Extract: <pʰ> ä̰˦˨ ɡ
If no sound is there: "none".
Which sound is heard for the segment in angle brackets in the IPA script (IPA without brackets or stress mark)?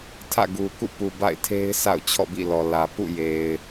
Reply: tʰ